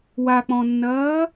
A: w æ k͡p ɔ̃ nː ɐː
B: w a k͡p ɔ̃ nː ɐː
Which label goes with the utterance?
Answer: B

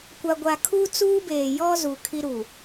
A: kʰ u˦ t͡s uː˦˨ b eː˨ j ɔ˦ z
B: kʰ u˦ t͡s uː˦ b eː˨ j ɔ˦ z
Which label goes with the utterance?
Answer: B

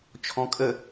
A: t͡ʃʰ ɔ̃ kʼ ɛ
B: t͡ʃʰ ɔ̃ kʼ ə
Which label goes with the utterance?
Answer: B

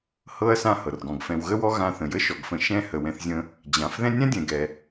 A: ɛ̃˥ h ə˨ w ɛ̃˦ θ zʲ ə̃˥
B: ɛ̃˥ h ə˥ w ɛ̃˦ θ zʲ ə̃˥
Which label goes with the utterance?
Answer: A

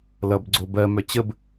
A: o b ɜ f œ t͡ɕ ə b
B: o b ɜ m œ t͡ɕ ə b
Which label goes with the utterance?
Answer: B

